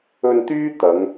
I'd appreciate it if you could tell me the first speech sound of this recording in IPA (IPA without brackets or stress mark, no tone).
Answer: ɵ